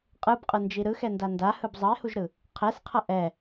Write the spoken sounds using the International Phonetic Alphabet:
qʼ ɯ b qʼ ɯ n d͡ʒ i ɾ ɯ x ɛ n d a n d a h ɯ b zˤ ʌ e̯ h u ʒ ɾ ɯ | qʰ ɛ s qʰ ʌ ʔ ɛ

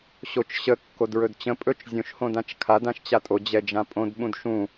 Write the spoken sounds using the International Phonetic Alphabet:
ɕ o t͡ʃ ɕ ə kː o d ɹ ɵ d t͡ɕ ə̃ pʼ ɵ t͡ʃ zʲ õ ʃ h õ d ã t͡ʃ kʰ a d ã ʃ t͡ɕ a tʼ o d͡ʑ ɛ d͡ʒ ã pʼ õ d ɓ ũ d ʃ ũ

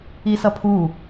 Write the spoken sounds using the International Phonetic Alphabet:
i s ʌ pʰ u

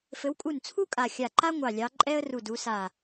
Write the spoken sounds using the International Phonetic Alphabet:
f ɘ˨˦ w kʼ u˧˩ n t͡sʰ u˥ kʼ a˧˩ xʲ a˧˩ ǃ a˥ ŋʷ ɑ˧˩ lʲ ɑ˨˦ ǃʼ ɛ˥ ə̯ r u˧˩ d u˨˦ s a˧˩

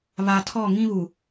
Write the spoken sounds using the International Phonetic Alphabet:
β a˨ tʰ ɔ˦˨ ŋ ĩ˦ β u˨

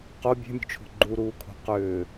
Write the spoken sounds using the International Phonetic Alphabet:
q o bʲ e̤ mʲ ṳ t͡ʃʰ o̤ ɡ͡ǃ u ɾ uː kʰ o̤ q ʏː

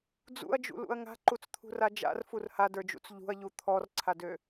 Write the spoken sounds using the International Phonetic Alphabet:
d͡z ṵ ɐ̯ d͡ʒ ṵ l ṵ ɐ̯ ŋ a̤ ǃ u t͡s t̪ʰ ṳ r a d͡ʒ a̰ r f u r h a d ə˞ d͡ʒ ṵ t͡s ʎ ṳ ɐ̯ ʎ u t̪ʰ ɔ r ǀʰ a d ø

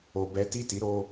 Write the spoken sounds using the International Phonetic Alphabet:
o˨ b ɛ˨˦ t i˦˨ t i˨˦ ɾ o˧

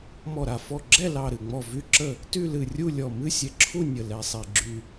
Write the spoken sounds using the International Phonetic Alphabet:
m ɔ˧˩ ɾ a˧˩ f ɔ˧˩ ɡ͡ǁ ɛ˥˨ l ɑ˧˩ ɾ ɨ˧˩ ŋ͡m ɔ˧˩ v y˧˩ ǁ ə˧˩ | t y˥˨ l ɨ˧˩ rʲ u˥˨ lʲ ɔ˧˩ m ɨ˥˨ sʲ ɛ˧˩ ǁʰ u˥˨ nʲ ə˧˩ l ɛ˧˩ sˤ ɛ˧˩ ɡ͡ǁ y˧˩

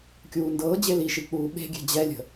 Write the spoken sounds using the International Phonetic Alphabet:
kʲ uː n d ɤː d͡ʑ e l i ʃ i k͡p uː ɓ e̤ ɡʲ ɛ̤ d͡ʑ ɛ lʲ ə̤

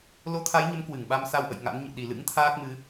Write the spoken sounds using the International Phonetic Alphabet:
l o˧ t̪ʰ a˨˦ j ɲ ə˨˦ m k w ɨ˧˩ ŋ ɓ a˧ m s a˧ w ʔ ə̰˧˨ j ŋ a̰˧˥ n ɲ ɨ̰˧˨ ɗ i˨˩ l ɨ̰˧˥ ŋ t̪ʰ aː˦˥ k̚ m ɨ˨˦

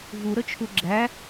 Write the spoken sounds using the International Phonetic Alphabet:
v u ɾ ə t͡ʃʰ u ɡ͡ǁ æ

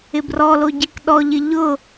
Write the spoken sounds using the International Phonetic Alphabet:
ɪ b r ɔ l o ɟ i k ɗ ɔ ʎ ɪ ʎ ʊ

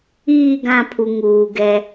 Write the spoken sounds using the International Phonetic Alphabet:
iː˦˨ ɡ ã˦˨ pʰ u˨ ŋ uː˨ ɡ ɛ˦

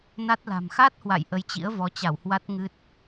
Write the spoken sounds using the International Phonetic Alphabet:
n a˦˥ t̚ l a̤˨˩ m x a˦˥ t̚ h w a̰˧˨ j ʔ ə˨˦ j t͡ɕ ḭ˧˥ ə̯ v ɔ˨˦ t͡ɕ a˧˩ w h w a˦˥ t̚ ŋ ɨ˦˥ t̚

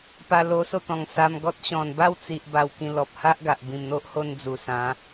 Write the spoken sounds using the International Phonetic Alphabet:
p a˧ l o˧ s o˥˧ t̪ ɔ̃˨˩ ŋ s a˧ m ɡ ɔ˦ t̚ ɕ ɔ̃˨˩ n b a˥˧ w t͡s i˨ ʔ b a˧ w k ĩ˧ l ɔ˨ p̚ h a˦ ʔ ɡ a˨ ʔ b ĩ˨˩ m n̪ o˦ ʔ h o˧ n d͡z u˨˩ s ã˨˦

